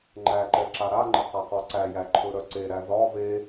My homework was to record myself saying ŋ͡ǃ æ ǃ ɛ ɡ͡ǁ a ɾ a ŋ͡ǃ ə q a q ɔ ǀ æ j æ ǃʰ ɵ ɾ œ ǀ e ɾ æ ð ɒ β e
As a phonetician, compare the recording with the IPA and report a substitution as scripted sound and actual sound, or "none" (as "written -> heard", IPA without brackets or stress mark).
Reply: ɡ͡ǁ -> ǁ